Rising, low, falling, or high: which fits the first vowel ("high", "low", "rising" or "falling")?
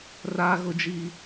high